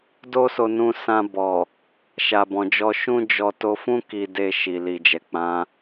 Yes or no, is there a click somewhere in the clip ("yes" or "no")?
no